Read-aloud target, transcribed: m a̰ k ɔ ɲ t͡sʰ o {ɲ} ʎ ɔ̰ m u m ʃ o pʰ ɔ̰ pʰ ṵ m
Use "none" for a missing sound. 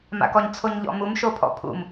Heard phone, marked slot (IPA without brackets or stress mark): ɲ